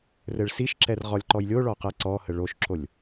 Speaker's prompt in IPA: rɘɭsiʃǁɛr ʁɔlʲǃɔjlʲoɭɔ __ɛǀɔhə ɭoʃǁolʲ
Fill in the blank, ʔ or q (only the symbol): q